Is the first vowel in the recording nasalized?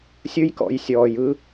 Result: no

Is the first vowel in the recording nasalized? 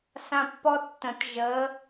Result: yes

